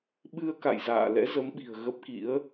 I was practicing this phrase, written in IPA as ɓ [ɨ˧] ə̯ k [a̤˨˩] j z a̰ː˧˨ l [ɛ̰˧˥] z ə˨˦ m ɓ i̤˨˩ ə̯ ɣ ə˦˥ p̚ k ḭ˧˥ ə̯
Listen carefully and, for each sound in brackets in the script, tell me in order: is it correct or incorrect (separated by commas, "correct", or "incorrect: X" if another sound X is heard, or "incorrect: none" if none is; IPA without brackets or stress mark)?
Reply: correct, incorrect: a̰˧˨, correct